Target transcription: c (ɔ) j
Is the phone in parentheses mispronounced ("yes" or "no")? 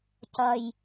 yes